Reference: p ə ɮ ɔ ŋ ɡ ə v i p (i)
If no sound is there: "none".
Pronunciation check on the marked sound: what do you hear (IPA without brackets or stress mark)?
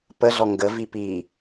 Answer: i